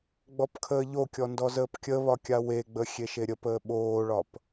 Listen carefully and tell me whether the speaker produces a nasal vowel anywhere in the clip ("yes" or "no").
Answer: no